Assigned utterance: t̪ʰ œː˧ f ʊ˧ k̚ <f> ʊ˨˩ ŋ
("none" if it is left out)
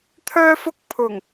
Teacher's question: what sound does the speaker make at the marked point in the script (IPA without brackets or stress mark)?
pʰ